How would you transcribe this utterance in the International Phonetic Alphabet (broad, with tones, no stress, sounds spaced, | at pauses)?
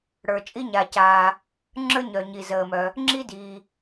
ɽ ə˞˩ t͡ʃʼ i˥ ɲ a˩ c aː˩ | ŋ͡ǁ ə˞˥ ɲ œ˩ ɲ i˩ z əː˩ m œ˩ | ŋ͡ǁ i˥ d i˩